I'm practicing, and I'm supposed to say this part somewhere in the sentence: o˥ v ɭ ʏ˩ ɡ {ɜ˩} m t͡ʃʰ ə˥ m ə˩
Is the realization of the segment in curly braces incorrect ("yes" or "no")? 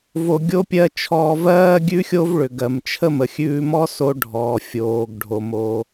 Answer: no